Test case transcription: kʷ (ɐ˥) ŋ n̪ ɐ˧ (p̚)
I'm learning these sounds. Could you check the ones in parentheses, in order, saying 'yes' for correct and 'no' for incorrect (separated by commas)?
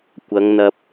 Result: no, yes